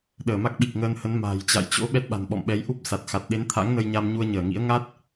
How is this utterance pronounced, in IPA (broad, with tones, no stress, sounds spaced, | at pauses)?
ɗ əː˧˩ m a˦˥ k̚ ɓ i˨˩ k̚ ŋ əː˧ n h ə˨˦ n m a̤ː˨˩ j t͡ɕ a̰˧˨ j t͡ɕ o̰˧˥ ɓ ɛ˦˥ t̚ ɓ a̤˨˩ n ɓ ɔ̰˧˨ m ɓ ɛ˨˦ j ʔ u˦˥ p̚ s a˨˩ t̚ x a˨˩ t̚ ɗ e˨˦ n t̪ʰ a̰˧˥ ŋ n ə˧ j ɲ a˧ m ɲ u˧ ə̯ ɲ əː˧˩ ŋ ḭ˧˥ ə̯ ŋ a˦˥ t̚